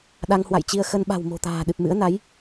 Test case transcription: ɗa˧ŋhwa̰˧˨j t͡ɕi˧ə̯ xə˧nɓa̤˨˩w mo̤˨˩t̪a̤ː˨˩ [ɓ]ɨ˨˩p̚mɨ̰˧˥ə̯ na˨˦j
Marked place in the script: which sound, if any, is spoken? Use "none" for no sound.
ɗ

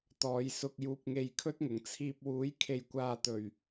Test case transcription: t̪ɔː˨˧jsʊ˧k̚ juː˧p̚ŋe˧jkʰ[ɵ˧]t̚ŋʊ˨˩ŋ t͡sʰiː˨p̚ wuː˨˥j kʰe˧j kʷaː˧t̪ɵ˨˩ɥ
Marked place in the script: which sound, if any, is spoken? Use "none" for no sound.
ɵ˥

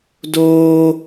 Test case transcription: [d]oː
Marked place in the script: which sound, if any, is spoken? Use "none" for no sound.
d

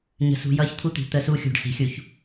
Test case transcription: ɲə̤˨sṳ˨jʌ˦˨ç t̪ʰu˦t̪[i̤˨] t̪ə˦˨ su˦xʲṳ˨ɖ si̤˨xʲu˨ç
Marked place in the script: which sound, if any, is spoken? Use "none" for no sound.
i̤˨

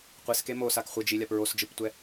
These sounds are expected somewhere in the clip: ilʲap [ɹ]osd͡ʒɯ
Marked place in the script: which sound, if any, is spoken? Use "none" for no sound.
ɹ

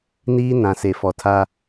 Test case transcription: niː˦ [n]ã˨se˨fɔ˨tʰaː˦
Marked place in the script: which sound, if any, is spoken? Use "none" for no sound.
n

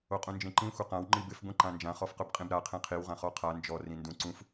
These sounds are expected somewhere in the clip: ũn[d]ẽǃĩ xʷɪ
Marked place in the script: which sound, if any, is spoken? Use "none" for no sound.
d͡ʒ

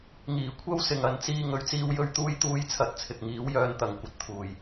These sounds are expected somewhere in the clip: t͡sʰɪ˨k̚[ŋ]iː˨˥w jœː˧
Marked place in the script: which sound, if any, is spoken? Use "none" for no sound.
ŋ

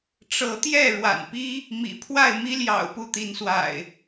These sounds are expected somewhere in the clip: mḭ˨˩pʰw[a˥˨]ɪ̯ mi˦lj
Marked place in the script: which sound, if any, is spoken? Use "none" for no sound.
a˥˨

